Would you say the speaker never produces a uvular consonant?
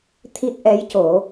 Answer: yes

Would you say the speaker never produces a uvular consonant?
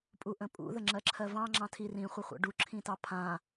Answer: no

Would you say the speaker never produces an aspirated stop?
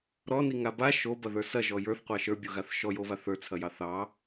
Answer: no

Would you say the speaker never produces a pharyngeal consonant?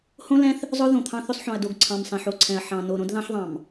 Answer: no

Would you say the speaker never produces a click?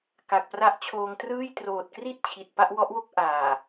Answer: yes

